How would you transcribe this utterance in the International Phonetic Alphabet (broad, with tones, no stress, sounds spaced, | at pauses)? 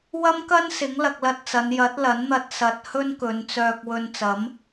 w ɐ˥ m k ɐ˥ n s ɪ˨˥ ŋ l ɐ˧ k̚ l ɐ˧ t̚ t͡s ɐ˨˧ n j ɐ˨˥ t̚ l ɐ˨˥ n n̪ ɐ˧ t̚ s ɐ˨ t̚ h ɵ˥ n k ɵ˨˧ n t͡s œː˧ k̚ w ɵ˧ n t͡s ɐ˨˥ m